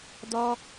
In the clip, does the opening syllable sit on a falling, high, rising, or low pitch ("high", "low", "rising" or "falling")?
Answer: high